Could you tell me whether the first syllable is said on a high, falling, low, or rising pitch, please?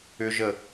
low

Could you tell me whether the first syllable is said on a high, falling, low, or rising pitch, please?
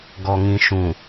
low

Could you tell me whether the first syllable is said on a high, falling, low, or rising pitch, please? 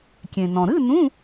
low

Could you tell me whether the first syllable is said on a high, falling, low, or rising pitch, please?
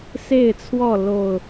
falling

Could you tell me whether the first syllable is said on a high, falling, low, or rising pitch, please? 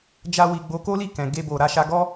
high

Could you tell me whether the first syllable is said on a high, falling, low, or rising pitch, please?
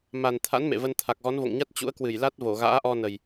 low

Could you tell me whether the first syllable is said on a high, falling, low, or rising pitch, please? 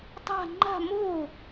falling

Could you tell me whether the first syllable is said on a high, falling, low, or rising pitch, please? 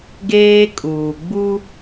high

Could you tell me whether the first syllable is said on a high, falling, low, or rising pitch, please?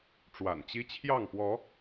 low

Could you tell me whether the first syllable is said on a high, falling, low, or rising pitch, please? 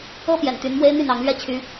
high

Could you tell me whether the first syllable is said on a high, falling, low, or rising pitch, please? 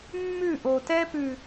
falling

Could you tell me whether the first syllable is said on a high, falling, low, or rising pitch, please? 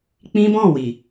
high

